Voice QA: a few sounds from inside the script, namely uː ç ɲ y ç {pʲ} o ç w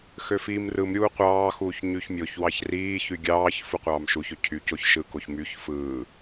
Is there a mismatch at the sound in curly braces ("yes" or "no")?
yes